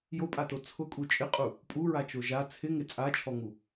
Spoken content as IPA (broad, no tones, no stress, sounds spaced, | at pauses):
j o pʼ a t o t͡sʰ ʊ kʼ u t͡ʃʼ ɪ qʼ u | pʼ u ɹ a t͡ʃ o ʒ a t͡sʰ ɪ ŋ ɪ t͡sʼ a t͡ʃʰ ɔ ŋ u